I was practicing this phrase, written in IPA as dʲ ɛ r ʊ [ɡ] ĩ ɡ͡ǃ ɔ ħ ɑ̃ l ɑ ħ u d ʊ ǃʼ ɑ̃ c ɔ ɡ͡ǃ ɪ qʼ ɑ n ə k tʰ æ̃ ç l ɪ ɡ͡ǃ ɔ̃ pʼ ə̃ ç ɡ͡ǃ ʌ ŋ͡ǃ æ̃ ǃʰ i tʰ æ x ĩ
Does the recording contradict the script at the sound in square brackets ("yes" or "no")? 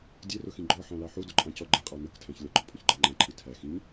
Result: yes